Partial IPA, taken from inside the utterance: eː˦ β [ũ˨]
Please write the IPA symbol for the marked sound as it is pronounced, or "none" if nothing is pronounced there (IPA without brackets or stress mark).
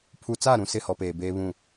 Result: ũ˦˨